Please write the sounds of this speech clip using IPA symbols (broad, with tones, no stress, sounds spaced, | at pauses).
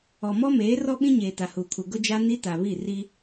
ɔ˨ m ɔ˦ m eː˨˦ r ɔ˦ ɓ ĩ˦ ɲ eː˨ t a˨ h uː˨ kʰ u˨ ɡ ʊ˦ d͡ʒ a˦ n i˦ t a˨ β i˦˨ r i˦